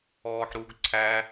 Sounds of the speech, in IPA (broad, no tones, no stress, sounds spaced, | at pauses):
ɔː ħ ɾ u ɡ ǀʰ æ